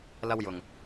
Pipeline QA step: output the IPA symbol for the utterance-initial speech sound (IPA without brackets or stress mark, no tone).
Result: l